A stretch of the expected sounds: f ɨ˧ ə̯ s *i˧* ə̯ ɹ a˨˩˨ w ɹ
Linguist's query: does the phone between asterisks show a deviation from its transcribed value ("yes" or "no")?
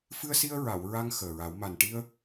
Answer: no